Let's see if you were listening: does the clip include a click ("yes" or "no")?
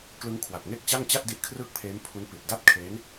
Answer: no